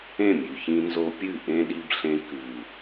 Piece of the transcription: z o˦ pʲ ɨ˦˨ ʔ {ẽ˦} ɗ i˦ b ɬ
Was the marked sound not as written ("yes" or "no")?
no